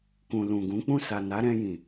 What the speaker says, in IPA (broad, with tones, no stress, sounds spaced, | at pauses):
k ũ˨ l ũ˨ ɡ ũ˨˦ k͡p ũ˦˨ s a˨ n a˨˦ ɾ ɛ̃˧ j ĩ˨